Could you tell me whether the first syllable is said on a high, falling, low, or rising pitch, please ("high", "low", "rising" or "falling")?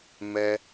high